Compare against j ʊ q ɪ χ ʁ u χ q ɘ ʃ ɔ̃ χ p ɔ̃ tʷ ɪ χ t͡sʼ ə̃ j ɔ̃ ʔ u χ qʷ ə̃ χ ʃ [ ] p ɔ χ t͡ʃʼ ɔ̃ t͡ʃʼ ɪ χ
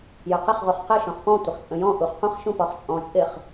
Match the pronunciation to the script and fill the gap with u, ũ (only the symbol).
ũ